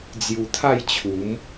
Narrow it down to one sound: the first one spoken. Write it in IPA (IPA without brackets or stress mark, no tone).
d͡z